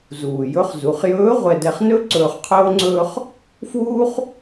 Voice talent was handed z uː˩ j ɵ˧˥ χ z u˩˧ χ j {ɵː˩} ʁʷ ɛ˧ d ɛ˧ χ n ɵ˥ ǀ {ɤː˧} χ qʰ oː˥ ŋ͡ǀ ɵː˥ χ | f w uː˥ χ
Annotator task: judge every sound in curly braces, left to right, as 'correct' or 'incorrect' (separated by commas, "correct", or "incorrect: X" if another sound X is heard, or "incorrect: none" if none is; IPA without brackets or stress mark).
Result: incorrect: ɵː˧˥, incorrect: ɵː˧